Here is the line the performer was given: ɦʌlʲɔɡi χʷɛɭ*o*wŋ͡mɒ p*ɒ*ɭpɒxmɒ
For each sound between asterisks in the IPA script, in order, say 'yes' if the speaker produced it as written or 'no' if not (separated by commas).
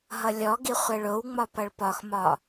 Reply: yes, no